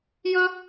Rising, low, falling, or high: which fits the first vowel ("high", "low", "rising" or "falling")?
high